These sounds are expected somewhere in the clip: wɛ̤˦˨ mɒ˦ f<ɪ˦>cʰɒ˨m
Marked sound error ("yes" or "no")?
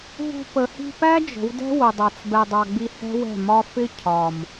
no